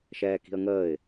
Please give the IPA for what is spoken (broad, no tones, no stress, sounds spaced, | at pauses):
ʃ ɛː k i̤ ə̯ ŋ əː ɪ̯